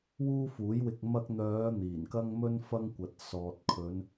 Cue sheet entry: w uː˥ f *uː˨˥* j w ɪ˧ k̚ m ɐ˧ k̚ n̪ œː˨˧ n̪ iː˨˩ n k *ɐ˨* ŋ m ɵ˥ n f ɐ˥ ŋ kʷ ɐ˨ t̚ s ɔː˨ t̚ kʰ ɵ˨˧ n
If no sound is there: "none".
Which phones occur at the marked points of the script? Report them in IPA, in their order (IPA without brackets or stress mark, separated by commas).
uː˨˥, ɐ˥